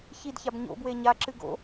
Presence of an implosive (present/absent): absent